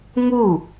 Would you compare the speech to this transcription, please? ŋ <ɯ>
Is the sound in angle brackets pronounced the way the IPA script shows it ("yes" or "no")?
no